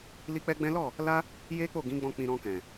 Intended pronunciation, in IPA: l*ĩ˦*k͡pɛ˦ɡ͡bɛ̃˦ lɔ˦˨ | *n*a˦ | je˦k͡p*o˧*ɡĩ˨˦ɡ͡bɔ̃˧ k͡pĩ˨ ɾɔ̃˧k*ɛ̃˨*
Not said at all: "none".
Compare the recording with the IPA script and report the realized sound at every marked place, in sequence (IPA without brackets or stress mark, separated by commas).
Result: i˦, l, o˦˨, ɛ̃˨